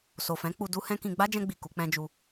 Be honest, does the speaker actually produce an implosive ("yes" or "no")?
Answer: no